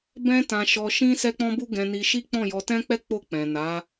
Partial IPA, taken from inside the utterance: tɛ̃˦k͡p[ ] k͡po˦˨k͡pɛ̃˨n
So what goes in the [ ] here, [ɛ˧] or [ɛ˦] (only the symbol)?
ɛ˦